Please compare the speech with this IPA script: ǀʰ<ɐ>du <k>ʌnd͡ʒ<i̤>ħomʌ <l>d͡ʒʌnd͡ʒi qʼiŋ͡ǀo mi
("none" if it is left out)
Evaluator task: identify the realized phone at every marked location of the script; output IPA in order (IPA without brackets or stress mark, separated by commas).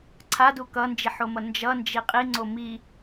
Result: a, k, i, n